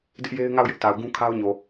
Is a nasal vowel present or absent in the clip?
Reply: present